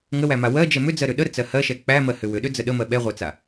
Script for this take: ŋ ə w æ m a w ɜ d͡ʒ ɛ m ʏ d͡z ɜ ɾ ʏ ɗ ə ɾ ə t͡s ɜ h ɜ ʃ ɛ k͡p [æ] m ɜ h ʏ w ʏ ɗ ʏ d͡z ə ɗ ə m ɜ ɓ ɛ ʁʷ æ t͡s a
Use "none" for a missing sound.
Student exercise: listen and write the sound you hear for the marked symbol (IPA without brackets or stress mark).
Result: æ